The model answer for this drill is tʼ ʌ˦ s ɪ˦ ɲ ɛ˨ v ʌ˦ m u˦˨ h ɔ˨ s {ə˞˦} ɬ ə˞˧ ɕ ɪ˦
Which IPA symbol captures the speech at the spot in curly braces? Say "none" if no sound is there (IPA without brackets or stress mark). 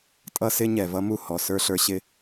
ə˞˦